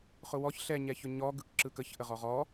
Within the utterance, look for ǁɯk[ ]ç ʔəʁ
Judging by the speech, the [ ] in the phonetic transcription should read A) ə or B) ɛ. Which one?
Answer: A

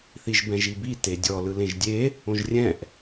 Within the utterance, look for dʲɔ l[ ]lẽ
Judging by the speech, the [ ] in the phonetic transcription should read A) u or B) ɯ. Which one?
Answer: B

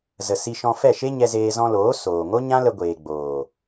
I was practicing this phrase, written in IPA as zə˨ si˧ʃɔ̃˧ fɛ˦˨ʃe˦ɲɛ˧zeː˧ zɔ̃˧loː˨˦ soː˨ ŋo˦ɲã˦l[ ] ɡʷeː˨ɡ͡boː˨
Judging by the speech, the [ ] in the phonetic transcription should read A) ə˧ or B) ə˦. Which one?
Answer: A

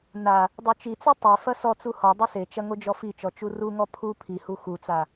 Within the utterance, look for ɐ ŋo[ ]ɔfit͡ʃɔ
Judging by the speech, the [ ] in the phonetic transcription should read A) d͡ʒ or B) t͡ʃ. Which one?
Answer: A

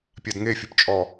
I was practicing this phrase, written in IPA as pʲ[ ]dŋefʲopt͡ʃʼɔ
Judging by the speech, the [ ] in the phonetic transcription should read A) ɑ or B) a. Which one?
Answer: B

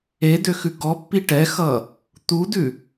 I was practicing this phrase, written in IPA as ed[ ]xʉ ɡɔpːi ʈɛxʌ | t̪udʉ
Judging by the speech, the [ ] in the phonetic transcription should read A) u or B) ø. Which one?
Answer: B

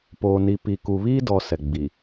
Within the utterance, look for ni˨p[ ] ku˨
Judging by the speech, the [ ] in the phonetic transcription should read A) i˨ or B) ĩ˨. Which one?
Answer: A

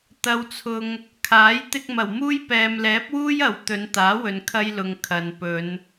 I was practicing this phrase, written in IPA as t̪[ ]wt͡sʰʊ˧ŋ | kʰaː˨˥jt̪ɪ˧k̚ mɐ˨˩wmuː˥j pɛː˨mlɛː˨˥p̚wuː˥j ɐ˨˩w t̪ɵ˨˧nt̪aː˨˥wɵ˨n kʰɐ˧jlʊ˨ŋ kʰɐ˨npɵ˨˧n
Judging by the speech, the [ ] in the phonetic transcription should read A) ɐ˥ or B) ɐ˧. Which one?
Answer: B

